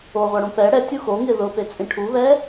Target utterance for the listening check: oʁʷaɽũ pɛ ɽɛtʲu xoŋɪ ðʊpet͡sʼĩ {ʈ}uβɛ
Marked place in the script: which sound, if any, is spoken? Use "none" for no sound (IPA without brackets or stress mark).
ʈʰ